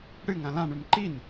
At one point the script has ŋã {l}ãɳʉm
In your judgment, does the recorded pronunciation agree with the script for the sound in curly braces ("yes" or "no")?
yes